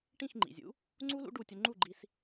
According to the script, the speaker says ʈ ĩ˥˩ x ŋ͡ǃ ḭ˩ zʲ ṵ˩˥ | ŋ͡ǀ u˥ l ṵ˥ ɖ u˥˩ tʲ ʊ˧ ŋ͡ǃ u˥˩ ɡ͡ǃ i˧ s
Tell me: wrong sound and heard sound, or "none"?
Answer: none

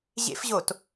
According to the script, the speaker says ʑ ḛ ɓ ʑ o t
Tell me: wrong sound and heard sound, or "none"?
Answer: ɓ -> f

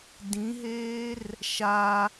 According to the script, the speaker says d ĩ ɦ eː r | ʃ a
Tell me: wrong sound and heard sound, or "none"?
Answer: none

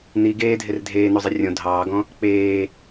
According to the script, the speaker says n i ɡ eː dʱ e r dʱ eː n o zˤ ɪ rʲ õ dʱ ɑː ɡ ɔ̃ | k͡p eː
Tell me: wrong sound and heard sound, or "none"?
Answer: none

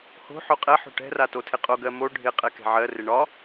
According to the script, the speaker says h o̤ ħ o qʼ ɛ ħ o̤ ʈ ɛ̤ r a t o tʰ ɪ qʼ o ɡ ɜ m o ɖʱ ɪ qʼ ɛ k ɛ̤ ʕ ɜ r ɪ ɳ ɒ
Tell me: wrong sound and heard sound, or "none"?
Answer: none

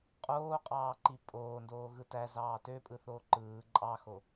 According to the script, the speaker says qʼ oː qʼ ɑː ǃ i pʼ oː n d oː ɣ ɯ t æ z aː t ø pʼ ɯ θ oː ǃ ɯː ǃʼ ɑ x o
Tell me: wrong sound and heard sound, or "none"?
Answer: aː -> ɑː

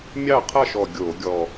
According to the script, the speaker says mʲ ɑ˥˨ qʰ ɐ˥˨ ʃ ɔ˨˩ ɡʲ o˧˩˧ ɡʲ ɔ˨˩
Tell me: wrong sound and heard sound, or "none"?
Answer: none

